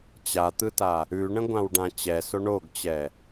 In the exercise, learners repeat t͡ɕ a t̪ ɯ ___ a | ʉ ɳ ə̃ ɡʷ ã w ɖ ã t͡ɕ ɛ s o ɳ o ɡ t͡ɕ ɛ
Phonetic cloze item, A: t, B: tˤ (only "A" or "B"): A